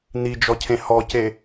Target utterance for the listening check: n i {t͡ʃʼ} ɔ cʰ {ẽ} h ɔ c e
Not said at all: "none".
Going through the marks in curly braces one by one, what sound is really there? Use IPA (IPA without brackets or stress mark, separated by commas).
d͡ʒ, ẽ